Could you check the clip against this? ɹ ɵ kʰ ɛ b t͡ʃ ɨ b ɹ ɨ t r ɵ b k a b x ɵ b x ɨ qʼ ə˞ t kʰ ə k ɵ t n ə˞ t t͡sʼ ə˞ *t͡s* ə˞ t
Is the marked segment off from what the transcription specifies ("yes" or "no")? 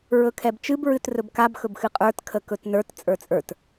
yes